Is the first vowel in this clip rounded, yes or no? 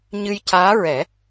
no